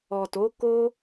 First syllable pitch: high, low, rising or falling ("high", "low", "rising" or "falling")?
low